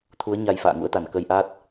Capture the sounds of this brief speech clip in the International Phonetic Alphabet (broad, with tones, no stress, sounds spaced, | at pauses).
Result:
t̪ʰ u˨˦ ə̯ ɲ a˧ j f a̰ː˧˨ ŋ ṵ˧˥ ə̯ t̪ a˧˩ n k ə˧ j ʔ a˦˥ t̚